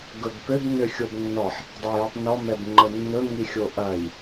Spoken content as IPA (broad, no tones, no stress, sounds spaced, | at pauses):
ɡ ɵ b p ø b n ø xʲ o b nː ɔ ħ | dˤ a j ɵ tˤ n ɔ m ɛ b ŋ͡ǃ ə nː ɵ ŋ i xʲ o ʔ ɐ j